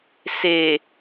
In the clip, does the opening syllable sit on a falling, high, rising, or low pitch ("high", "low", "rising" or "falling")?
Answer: low